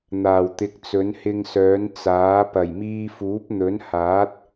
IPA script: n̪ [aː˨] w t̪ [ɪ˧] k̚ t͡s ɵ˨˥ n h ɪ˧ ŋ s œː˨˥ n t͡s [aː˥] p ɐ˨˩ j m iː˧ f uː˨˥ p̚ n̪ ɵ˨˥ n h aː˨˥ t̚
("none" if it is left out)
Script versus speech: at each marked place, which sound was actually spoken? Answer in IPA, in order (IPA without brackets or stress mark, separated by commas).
aː˨˩, ɪ˨˥, aː˨˥